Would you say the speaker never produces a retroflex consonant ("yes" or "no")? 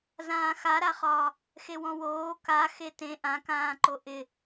yes